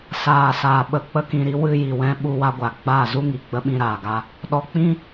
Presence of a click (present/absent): absent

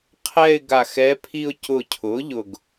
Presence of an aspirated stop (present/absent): present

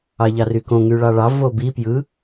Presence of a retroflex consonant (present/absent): present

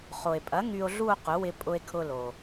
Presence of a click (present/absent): absent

